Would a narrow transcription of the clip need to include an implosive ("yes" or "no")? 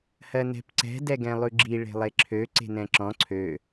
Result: no